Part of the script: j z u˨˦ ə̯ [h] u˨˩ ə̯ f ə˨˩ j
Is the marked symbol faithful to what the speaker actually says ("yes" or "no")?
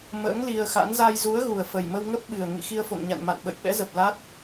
no